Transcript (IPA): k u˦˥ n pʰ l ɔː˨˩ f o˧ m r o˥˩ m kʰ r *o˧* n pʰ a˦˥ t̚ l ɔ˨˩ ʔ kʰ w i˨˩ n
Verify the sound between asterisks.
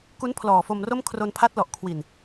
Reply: correct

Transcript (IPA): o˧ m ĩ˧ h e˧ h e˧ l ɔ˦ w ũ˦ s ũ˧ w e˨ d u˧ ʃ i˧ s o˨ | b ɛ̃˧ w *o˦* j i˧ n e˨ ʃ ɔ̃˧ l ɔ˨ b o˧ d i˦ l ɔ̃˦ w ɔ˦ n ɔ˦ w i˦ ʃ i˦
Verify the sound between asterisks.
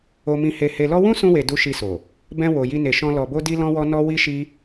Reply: incorrect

